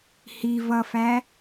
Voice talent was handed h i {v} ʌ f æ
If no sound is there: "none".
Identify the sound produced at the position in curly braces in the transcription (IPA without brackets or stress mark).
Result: v